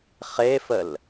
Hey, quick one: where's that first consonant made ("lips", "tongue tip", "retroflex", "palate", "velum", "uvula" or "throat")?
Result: uvula